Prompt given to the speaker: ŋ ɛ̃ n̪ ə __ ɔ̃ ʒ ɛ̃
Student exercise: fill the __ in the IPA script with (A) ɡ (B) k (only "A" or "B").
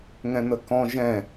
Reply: B